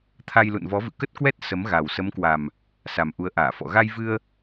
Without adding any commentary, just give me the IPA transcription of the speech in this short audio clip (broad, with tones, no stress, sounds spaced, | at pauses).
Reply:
t̪ʰ a˧ j l ṵ˧˨ n v ɔ˨˦ v ɨ̰˧˨ k ə˦˥ t̚ k w ɛ˦˥ t̚ s ə˨˦ m ɣ a˨˩ w s ə˨˦ m k w a˨˩ m | s a˨˩ m ʔ u˨˦ ə̯ ʔ aː˧˩ f ɔ̰˧˨ ɣ a˧ j v ɨ˧ ə̯